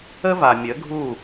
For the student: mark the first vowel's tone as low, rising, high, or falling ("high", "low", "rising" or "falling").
high